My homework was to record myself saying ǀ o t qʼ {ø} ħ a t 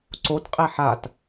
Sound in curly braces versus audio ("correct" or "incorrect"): incorrect